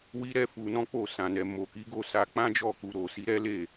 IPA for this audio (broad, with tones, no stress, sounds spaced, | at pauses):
w i˦ ɾ ɛ˦ f u˧ n ɔ̃˦ k͡p o˦˨ s ã˨ n ɛ˨ m o˨ k i˨˦ ɡ o˦˨ s a˧ k͡p ã˦ d͡ʒ ɔ˦˨ k u˨ ɾ o˨ s i˨˦ ɾ ɛ˦ l e˦˨